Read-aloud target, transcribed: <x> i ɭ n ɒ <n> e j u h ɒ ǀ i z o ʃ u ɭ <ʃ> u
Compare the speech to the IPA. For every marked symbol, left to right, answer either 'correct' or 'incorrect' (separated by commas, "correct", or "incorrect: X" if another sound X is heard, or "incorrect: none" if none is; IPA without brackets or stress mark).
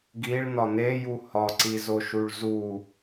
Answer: incorrect: ɡ, correct, incorrect: z